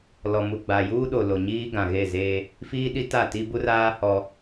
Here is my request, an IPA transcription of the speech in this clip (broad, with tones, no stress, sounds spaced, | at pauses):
l ɔ˨ m u˨ ɡ͡b a˨ j uː˦ ɗ o˨ l o˨ ɲ iː˦ ɡ ã˨ ɣ e˦˨ z eː˦ | f iː˦ ɗ i˦ t a˦˨ t i˦ b u˦ r aː˦ h ɔ˦